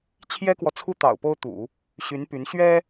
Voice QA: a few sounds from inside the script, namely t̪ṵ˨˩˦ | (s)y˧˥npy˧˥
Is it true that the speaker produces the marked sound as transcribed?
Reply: no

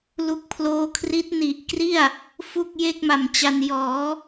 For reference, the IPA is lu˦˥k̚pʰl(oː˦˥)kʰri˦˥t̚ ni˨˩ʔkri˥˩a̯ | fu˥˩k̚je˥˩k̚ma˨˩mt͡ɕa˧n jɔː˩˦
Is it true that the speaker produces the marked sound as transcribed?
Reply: yes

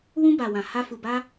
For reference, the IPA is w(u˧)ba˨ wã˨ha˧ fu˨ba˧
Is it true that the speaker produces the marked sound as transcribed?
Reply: no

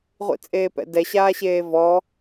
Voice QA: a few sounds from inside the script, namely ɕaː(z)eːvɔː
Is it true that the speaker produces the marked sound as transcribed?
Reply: no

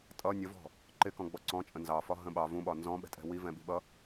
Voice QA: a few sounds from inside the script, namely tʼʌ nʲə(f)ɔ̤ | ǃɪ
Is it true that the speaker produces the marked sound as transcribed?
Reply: no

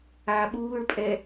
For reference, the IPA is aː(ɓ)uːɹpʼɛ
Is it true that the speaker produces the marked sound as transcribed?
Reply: yes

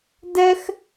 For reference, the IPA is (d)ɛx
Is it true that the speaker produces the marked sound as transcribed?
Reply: yes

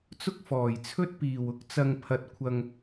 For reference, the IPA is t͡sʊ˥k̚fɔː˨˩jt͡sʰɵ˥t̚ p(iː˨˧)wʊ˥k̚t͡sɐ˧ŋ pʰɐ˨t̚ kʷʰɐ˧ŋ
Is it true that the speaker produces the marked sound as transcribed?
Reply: no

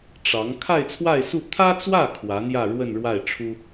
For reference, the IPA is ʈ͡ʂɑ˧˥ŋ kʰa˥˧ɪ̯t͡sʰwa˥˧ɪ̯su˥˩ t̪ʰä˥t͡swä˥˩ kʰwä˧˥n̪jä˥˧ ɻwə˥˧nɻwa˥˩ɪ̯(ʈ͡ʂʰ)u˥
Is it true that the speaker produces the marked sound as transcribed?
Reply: yes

